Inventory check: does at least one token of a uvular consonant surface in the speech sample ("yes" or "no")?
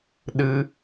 no